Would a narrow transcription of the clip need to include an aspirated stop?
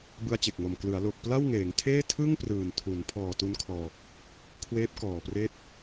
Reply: yes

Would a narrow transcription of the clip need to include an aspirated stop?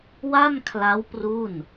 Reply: yes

